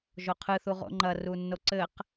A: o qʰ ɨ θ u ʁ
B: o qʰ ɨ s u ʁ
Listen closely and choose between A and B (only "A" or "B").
A